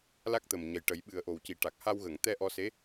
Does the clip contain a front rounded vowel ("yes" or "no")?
no